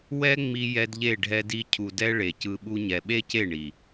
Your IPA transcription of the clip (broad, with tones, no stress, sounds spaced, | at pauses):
w ɛ˦ ŋ͡m i˧ j ɛ˦ d ʎ e˦˨ ɖʱ ɛ˦ d i˦ cʰ u˨ d ɛ˧ ɭ e˨ c ɯ˧ ɓ u˦ ɲ ɛ˧ ɓ e˦ c e˦˨ ɳ i˨